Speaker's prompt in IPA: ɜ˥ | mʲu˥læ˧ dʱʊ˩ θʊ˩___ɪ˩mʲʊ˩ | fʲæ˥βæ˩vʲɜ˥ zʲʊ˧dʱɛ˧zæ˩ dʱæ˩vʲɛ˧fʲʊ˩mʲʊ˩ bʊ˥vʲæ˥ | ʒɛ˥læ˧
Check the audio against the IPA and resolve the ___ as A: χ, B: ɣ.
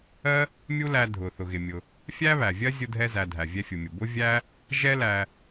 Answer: B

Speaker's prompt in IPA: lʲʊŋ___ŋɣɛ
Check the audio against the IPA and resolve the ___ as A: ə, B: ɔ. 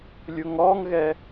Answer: B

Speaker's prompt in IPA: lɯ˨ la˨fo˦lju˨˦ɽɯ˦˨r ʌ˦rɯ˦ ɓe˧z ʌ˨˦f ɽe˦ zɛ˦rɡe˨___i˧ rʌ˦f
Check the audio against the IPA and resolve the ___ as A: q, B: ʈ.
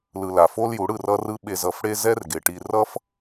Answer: B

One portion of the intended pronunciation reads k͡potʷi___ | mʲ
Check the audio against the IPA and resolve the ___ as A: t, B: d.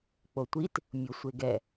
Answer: A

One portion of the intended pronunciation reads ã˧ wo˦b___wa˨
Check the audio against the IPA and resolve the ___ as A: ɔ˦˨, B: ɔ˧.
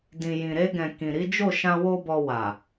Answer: B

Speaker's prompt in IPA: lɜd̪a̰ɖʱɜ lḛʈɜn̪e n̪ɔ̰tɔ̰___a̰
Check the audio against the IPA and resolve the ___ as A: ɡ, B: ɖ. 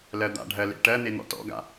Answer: A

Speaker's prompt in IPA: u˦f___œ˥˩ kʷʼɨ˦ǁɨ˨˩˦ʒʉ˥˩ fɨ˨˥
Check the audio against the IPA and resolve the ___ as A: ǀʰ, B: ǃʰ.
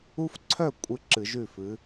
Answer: A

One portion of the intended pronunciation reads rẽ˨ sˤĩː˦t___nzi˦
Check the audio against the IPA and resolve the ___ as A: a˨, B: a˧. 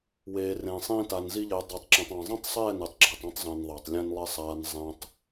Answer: B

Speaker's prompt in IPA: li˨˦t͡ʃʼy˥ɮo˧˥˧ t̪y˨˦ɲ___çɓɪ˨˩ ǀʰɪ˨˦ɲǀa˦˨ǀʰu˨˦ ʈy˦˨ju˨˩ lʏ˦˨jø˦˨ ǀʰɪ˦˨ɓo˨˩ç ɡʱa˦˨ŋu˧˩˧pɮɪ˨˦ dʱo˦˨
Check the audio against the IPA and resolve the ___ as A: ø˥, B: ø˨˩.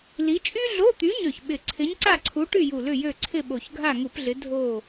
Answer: B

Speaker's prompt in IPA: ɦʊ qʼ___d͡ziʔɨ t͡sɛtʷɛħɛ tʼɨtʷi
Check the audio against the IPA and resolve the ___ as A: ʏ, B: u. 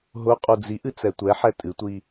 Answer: B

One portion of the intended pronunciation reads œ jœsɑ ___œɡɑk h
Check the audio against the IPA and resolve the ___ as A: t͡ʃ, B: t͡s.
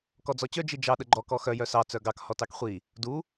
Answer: B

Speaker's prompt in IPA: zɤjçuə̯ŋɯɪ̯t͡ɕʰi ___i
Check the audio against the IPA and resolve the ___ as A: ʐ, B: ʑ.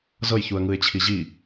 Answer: B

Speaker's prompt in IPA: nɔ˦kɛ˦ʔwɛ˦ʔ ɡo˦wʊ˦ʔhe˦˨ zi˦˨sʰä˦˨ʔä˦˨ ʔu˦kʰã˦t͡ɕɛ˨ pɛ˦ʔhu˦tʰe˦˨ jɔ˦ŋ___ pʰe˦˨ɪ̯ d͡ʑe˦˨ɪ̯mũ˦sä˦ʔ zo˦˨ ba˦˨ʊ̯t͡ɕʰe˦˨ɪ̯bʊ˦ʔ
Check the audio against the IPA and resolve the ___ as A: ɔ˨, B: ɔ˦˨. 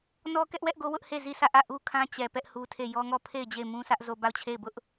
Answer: B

